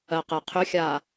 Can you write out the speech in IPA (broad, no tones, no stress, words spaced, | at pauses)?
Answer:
ɜqɛqʰʏxʲa